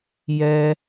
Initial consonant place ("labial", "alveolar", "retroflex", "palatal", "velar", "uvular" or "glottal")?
palatal